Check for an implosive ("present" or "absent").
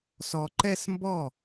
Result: absent